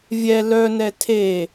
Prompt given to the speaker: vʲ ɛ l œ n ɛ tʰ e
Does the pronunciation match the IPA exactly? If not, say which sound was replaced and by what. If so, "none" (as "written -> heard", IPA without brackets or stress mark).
none